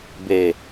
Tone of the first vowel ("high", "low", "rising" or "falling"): low